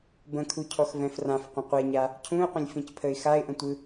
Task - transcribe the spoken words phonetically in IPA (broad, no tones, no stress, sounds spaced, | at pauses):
b ə̃ kʰ u cʰ ɔ x v ɛ̃ f r ã f qʷ ə̃ qʷ ɛ ɲ a | cʰ ũ ɪ̯ qʷ ə̃ lʲ f ĩ c pʰ ə ɪ̯ x a ɪ̯ ʔ ə̃ tʷ ɯ